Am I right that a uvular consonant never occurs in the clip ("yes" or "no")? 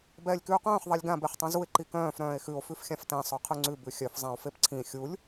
no